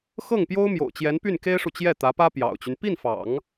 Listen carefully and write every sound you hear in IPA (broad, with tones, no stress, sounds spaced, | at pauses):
x ɤ˥˩ ŋ p j o˥ ʊ̯ m j o̰˨˩ ʊ̯ t͡ɕ j ɛ˧˥ n p y˥˩ n k e˥ ɪ̯ ʂ u˨ t͡ɕ j ɛ˥˩ t̪ ä˧˥ p ä˥ p j ɑ̰˨˩ ʊ̯ t͡ɕ y˦ n p i˥˩ n f ɑ̰˨˩˦ ŋ